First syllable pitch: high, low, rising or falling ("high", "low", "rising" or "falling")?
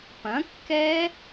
rising